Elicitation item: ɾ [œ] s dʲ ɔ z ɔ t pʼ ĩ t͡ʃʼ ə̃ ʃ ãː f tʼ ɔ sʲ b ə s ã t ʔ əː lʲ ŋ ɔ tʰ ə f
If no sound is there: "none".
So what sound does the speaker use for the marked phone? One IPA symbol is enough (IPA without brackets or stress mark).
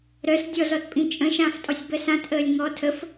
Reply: œ